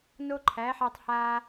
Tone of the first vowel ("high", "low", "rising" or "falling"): high